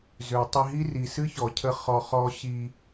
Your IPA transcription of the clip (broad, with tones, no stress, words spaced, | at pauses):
zø˨ tˤi˧ɦi˦ri˨ sɨ˦çɔ˨cʰə˧ χɔ˧ χɔ˧ɕi˧